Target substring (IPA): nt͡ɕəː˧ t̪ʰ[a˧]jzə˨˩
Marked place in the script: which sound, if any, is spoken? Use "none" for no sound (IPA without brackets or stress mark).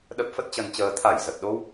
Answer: a˧˩